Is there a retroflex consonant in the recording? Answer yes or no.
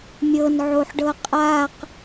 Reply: yes